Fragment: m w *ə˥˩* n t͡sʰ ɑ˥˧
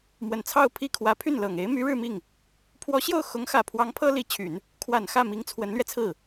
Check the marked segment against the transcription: incorrect: ə˨˩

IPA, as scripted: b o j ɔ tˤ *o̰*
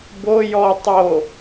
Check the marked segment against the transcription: incorrect: o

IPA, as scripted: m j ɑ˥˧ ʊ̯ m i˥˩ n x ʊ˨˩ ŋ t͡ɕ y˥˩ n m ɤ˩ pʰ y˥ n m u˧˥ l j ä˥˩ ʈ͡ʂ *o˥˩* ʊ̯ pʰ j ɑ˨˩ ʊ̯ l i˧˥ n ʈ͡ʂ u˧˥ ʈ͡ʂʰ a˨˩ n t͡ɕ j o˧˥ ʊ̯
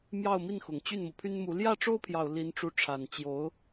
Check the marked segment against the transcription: incorrect: o˥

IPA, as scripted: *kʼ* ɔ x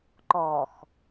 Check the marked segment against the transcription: incorrect: ǃ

